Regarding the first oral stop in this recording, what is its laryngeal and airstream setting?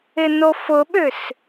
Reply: implosive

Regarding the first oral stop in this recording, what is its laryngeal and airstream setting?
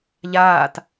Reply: plain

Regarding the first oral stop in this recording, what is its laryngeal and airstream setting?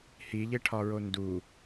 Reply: aspirated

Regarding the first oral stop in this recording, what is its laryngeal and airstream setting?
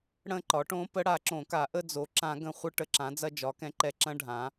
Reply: click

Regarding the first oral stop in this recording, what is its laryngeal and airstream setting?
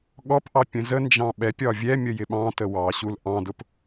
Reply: implosive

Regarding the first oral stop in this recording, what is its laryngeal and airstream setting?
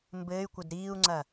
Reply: plain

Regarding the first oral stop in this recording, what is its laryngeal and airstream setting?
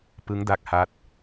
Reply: plain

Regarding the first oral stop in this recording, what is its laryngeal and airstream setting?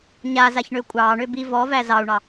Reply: ejective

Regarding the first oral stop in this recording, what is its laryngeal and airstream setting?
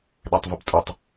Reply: implosive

